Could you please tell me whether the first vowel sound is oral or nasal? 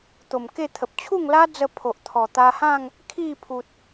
oral